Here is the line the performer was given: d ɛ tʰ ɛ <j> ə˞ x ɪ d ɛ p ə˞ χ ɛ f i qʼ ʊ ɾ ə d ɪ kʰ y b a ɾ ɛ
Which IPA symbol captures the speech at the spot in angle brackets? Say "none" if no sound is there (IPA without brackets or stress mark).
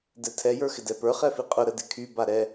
j